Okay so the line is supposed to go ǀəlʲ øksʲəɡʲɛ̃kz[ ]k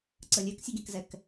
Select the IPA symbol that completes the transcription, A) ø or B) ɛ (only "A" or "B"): B